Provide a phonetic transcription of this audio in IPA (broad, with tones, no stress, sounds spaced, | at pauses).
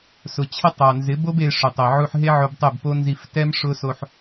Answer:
s ʊ˨ t͡ɕʰ ɪ˦ tˤ a˨ n z ɪ˨˦ b o˦ b e˧ ʂ ʊ˨ tˤ ɪ˨ ʕ u˧ ħ ɦ e˦ ʕ o˧ b tˤ e˦˨ b p o˦ n z i˧ f t ɛ˦ m ʂ ʊ˦ s o˧ ħ